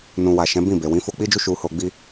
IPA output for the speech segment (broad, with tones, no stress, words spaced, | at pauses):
nũ˨wa˨ ʃɛ̃˨˦bĩ˦˨be˨ wĩ˨˦fo˧k͡pi˦d͡ʒu˦ ʃu˧ho˧ɡ͡bi˦